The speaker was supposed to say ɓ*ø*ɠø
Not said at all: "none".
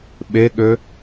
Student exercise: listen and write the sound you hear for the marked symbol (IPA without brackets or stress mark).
e